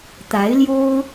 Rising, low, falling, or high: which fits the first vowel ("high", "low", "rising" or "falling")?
rising